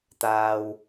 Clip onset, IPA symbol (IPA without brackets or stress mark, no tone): t̪